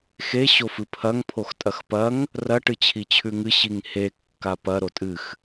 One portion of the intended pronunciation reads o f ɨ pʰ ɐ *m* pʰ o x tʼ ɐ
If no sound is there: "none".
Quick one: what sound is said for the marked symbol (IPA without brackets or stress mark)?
ŋ